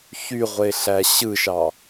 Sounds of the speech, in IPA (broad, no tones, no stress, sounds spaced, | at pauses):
ç y ʁʷ e ɬ æ ɕ ɯ ʃ ɑ